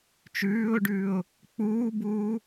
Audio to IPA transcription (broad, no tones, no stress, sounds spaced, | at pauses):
t͡ʃ ʉː ʊ̯ ɖ ʉː ʊ̯ | k͡p uː b uː